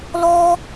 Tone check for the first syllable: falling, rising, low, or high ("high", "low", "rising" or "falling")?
high